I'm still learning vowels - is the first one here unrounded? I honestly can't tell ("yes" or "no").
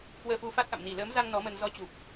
yes